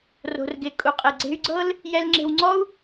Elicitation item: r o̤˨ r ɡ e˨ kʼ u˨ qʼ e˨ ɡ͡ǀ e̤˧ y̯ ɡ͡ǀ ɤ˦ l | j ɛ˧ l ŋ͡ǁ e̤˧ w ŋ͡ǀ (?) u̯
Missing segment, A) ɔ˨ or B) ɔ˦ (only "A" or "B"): B